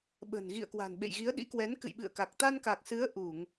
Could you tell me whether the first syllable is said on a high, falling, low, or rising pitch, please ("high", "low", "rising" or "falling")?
low